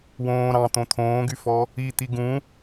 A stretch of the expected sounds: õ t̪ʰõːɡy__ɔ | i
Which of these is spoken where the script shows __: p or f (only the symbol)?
f